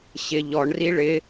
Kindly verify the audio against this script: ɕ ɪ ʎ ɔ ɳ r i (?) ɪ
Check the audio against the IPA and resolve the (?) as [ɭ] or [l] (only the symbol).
ɭ